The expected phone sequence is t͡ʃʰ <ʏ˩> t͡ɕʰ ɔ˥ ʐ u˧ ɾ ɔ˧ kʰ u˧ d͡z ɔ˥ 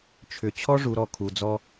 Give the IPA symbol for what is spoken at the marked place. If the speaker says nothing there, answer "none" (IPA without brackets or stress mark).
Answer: ʏ˧